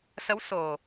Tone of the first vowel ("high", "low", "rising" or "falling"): rising